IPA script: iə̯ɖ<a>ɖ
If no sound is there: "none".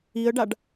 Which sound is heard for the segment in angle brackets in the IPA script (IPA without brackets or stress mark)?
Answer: a